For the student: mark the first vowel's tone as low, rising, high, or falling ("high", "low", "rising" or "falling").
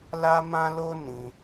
high